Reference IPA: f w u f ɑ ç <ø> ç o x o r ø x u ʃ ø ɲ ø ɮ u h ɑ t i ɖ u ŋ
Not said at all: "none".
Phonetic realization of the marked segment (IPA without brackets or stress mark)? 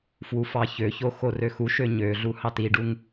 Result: ø